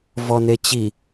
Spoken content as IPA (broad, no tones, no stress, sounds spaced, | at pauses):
v ɔ n e t͡ɕ i